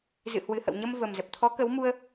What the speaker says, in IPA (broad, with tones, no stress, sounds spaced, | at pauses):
z ɨ̰˧˨ h w ɨ˨˩ h ə̰˧˨ w ɲ ə˧ m v ə˨˩ m z ə˨˩ p̚ t̪ʰ ɔ˨˦ k ə˨˦ w m u˧ ə̯